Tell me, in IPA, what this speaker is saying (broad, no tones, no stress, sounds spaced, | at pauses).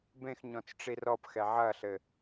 b ẽ x ɲ ɔ̃ t͡s ʈ͡ʂ i r ɔ p x ɛ ʕ ɐ ɬ ɘ